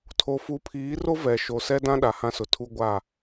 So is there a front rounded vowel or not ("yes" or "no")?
no